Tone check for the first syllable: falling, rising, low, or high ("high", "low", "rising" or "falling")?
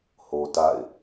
high